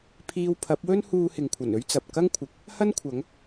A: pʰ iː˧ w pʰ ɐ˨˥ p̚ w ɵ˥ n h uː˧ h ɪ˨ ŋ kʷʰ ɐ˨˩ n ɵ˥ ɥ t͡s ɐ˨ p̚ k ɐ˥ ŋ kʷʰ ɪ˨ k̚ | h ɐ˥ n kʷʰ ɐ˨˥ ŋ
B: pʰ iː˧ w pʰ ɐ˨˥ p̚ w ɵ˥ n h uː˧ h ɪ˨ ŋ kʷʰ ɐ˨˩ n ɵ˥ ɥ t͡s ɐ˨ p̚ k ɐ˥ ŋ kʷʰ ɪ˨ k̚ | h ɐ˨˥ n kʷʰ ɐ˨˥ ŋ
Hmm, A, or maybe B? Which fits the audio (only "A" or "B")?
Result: A